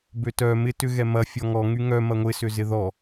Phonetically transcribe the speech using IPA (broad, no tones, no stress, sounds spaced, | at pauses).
b ø t œ m ɪ t ʏ ɣ ɛ m ɐ fʲ ɔ ŋ ɔ ŋ y ŋ œ m ɐ ŋʷ ɪ s ʏ z ɪ ð ɔ